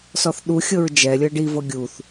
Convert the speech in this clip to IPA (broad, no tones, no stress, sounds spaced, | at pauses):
s ɔ θ ɗ u xʲ ɤ ɹ d͡ʒ ɛ lʲ ɤ ɖ i v ɤ ɡʲ u θ